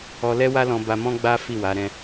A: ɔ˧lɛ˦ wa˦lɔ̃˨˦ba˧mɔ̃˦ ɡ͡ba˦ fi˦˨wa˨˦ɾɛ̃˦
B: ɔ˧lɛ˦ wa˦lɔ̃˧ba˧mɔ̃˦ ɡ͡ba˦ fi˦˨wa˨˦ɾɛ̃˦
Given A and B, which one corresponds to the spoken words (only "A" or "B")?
B